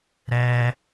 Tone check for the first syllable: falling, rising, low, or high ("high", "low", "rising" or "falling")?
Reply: high